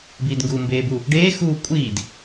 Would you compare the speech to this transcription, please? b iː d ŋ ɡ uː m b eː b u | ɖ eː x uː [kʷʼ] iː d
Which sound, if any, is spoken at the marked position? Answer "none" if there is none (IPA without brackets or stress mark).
kʷʼ